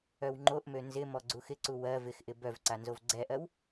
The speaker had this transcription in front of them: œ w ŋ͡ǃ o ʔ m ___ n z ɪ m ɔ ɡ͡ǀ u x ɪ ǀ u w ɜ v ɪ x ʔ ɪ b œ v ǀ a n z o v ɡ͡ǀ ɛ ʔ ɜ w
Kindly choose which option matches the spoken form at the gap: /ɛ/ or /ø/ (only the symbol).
ø